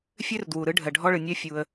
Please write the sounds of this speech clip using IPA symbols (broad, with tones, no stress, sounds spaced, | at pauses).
fʲ ø˦ r d w u˨ ɾ ɯ˨˦ ɖʱ ɜ˨ ɖʱ ɔ˦ ɭ ɯ˨ nʲ ɜ˦ fʲ u˧ ə̯